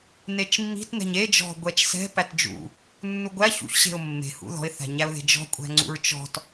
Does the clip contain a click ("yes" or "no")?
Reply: yes